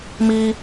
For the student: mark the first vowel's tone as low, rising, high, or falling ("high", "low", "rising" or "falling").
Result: high